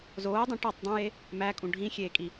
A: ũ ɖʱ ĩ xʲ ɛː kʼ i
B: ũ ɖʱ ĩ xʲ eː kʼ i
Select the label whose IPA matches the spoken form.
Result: B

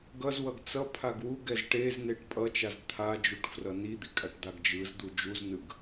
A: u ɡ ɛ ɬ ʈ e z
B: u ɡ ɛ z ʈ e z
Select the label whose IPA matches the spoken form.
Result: B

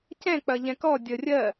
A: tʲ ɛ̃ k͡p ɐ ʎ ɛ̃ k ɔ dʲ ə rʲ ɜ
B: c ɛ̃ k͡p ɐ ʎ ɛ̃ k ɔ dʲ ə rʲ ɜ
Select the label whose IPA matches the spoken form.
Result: B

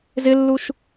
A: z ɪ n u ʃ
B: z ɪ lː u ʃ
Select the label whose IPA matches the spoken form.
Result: B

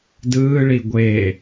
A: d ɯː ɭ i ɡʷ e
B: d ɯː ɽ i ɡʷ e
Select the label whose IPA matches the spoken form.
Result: A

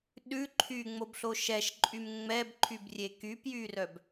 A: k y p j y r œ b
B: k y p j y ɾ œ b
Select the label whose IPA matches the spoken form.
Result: A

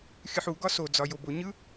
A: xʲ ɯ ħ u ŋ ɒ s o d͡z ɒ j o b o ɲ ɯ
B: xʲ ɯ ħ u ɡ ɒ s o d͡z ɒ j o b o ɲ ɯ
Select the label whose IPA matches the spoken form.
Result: B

